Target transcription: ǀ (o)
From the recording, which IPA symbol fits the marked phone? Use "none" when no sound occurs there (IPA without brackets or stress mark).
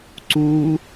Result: u